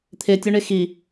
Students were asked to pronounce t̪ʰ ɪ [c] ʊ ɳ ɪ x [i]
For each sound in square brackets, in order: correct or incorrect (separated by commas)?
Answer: incorrect, correct